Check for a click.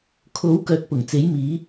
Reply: absent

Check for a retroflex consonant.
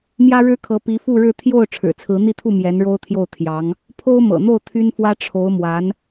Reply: present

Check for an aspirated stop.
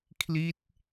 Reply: present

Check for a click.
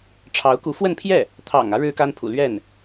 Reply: absent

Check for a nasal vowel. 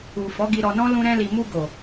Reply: present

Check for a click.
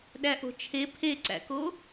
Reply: present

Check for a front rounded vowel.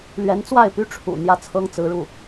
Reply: present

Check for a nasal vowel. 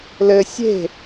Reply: absent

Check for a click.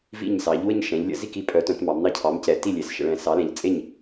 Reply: absent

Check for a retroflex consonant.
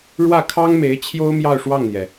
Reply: present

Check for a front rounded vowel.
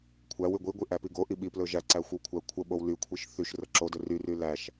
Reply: present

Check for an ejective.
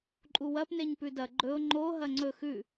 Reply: present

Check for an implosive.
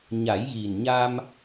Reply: absent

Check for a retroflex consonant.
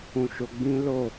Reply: absent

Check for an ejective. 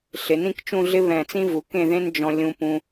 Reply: absent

